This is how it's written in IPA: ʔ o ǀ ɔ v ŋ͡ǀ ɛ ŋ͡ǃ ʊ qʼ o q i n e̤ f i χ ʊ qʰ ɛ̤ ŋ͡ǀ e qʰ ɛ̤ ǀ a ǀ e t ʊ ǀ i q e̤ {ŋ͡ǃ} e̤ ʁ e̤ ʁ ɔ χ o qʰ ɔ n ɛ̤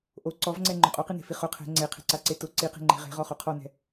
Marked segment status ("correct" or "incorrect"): correct